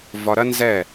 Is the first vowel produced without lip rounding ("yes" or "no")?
no